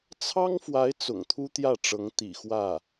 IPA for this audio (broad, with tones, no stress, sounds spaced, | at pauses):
t͡sʰ ɑ˥ ŋ f w a˧˥ ɪ̯ t͡s ʊ̰˨˩ ŋ t̪ʰ u˥ t̪ j ä˥˩ ʈ͡ʂ ɤ˧˥ ŋ t̪ ḭ˨˩ x w ä˥˩